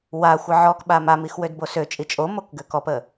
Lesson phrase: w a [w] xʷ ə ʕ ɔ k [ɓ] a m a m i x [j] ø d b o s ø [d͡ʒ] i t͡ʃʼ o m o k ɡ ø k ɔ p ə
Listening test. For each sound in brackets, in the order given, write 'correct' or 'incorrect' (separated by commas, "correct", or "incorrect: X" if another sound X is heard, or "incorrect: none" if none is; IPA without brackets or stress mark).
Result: incorrect: none, correct, incorrect: w, incorrect: t͡ʃʼ